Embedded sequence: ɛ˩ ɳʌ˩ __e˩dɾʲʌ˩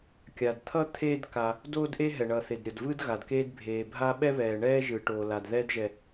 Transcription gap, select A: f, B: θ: B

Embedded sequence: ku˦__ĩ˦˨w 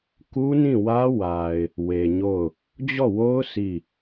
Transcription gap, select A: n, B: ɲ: A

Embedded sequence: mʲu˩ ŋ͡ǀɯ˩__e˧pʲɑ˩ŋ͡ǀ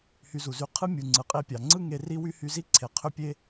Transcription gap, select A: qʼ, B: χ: A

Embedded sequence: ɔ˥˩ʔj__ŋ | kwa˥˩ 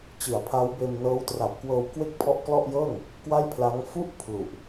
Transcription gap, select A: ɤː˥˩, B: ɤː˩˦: A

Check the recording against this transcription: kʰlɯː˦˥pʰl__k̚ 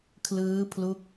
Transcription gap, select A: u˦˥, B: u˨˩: A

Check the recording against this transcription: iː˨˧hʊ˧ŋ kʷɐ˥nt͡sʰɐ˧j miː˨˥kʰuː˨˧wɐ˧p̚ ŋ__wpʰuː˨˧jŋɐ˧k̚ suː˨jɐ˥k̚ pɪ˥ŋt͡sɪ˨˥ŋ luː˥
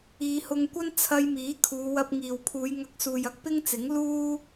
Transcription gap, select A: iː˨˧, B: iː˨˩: B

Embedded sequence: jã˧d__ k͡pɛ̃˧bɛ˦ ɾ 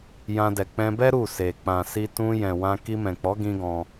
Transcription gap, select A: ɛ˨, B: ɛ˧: A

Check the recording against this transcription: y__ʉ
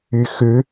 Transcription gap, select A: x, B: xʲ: A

